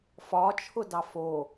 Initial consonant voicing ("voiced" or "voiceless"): voiceless